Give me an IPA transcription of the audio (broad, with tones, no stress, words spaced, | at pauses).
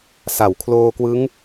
sa˩˦w kʰloː˧kwɯ˦˥ŋ